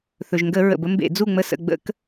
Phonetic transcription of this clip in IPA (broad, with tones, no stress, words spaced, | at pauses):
θɵ˩ʒŋɡə˧˩˧ ɹə̰˩bə˦mbḛ˧˩˧ d͡zu˦˨ŋ͡mə˦˨sə̰˦˨ ɡ͡bə̰˦˨k